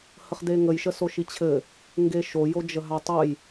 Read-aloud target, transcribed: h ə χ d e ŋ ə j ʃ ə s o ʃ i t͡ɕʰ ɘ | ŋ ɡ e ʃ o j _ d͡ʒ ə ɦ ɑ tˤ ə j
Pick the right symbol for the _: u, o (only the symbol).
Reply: o